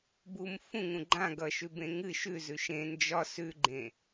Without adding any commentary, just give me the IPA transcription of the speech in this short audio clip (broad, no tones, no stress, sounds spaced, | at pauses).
b u m f ũ ŋ ũ ɡ͡ǃ ã ɡ ʌ ʃ ʉ b ẽ ŋ ɨ ʃ ʉ z ʉ ʃ ẽ n d͡ʒ ɒ s ʉ ɡ͡ǃ ẽ